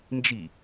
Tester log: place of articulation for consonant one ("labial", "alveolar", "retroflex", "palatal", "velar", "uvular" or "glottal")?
alveolar